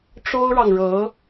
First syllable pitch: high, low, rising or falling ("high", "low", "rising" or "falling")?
high